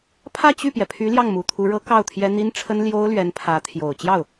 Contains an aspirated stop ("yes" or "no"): yes